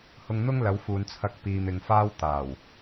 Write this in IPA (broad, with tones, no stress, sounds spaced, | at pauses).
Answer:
h ʊ˧ ŋ n̪ ʊ˥ ŋ l ɐ˨˧ w f uː˨ n t͡sʰ ɐ˧ k̚ p iː˨ m ɪ˨ ŋ f aː˥ w t̪ aː˨˩ w